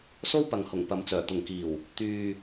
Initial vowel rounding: rounded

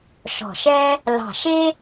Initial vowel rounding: rounded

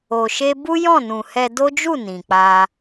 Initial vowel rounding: rounded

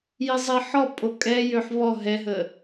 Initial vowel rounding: unrounded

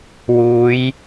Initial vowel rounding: rounded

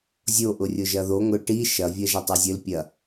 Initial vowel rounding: rounded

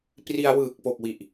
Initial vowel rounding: unrounded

